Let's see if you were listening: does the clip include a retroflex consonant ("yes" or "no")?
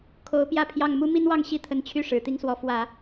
yes